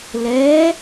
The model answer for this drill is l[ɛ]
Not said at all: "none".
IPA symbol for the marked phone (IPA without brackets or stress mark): ɛ